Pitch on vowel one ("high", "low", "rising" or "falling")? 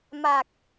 low